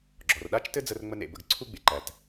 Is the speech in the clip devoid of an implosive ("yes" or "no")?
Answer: no